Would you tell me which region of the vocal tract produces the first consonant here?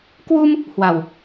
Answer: velum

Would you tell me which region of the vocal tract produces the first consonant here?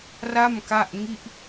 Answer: tongue tip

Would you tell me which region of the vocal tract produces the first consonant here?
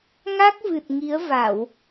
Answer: velum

